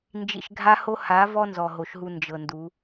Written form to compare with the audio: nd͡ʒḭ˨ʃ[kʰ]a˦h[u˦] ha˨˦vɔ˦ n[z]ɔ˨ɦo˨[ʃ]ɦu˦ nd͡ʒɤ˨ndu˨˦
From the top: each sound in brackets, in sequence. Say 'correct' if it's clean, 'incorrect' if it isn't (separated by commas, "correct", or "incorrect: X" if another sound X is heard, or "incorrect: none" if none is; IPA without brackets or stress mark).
incorrect: ɡʱ, incorrect: o˦, correct, correct